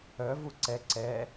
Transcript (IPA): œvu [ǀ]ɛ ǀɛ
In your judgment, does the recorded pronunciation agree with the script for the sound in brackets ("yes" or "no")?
yes